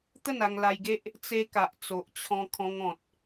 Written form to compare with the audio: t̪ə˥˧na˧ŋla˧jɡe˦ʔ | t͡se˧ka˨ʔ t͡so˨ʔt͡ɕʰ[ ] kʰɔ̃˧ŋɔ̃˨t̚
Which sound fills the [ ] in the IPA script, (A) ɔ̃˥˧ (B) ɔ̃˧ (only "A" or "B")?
B